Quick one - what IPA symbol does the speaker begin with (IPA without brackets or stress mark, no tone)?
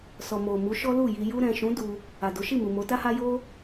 s